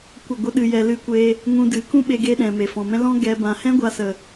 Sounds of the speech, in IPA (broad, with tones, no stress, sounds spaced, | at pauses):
kʷ ə˦˨ ɡʷ ə˦ ɗ ɨ˧ j ɛ˧ l ɨ˦ kʷ e˦ | ŋ ũ˧ d ɨ˨˦ k ũ˦ ɓ e˦ ɡ e˦ ɗ ɛ̃˨ m e˨ f ɔ̃˨ m ɛ̃˦ l ɔ̃˦ ɡ ɛ˧ b ã˨ h ɛ̃˦ ɡʷ a˧ s ə˨